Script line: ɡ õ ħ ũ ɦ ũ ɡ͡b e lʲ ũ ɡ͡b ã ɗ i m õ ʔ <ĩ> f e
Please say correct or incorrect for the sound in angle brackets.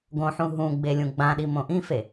correct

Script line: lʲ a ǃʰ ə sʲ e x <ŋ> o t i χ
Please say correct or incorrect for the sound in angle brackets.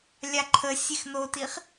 incorrect: n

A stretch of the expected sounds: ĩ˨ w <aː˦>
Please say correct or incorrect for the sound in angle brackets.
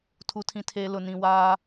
correct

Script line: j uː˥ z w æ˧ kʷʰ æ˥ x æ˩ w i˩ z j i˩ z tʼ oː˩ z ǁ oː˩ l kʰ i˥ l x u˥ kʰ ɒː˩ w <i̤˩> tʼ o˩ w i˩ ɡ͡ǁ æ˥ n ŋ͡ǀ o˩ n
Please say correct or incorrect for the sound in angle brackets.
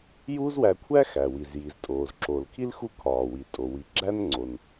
incorrect: i˩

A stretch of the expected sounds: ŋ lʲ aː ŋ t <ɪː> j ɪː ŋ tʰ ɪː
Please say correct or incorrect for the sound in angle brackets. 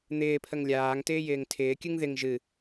correct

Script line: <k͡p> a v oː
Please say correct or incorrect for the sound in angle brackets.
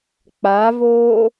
correct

